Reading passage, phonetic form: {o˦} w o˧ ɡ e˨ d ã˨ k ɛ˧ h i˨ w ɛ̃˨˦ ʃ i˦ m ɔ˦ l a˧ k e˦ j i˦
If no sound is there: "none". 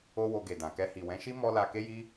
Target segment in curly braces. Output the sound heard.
o˦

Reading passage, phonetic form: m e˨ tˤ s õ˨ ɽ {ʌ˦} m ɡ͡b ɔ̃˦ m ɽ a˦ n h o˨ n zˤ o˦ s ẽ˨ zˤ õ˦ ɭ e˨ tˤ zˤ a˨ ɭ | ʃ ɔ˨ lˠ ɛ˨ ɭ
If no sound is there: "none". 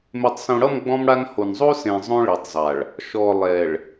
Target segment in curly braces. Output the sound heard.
ʌ˦˨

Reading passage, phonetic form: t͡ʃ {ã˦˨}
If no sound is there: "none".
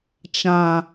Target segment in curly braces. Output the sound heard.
ã˨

